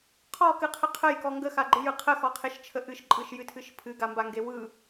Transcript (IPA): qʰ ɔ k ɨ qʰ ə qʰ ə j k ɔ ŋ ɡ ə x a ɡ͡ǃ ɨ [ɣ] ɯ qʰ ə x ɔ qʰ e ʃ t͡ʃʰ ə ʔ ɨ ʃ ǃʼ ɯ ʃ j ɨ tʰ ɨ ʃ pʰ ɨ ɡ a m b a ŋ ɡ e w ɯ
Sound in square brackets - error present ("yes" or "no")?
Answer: yes